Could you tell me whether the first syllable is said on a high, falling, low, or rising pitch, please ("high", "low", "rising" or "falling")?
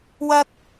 high